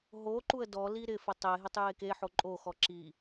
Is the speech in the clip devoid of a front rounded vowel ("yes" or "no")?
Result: yes